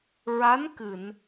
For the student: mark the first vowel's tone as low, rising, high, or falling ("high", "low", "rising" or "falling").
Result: rising